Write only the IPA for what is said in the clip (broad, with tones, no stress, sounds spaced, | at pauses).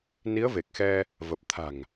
n i˨˦ ə̯ v e˨˩ k̚ x ɛ˧ | v ə˨˩ p̚ t̪ʰ a̤˨˩ ŋ